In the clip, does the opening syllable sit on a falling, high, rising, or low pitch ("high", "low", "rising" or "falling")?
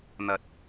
low